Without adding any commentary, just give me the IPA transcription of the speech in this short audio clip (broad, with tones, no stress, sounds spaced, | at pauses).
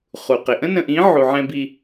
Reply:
χ u˨ q ɪ˨ ʔ ə̃˦ n ə̃˨ ʔ ĩ˨˦ ʕ u˨ ʕ ɛ̃˦ b i˦